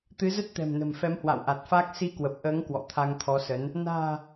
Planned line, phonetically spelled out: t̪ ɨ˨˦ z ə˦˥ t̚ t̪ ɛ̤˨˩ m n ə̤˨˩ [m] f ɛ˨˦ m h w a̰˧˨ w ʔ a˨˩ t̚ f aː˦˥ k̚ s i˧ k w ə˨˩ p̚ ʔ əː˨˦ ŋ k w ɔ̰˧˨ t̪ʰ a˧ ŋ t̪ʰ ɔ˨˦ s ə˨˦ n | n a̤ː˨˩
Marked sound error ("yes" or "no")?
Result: no